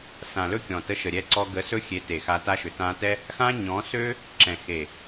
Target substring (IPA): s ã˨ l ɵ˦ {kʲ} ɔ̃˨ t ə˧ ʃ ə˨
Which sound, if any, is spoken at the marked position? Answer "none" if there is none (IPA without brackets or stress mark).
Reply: kʲ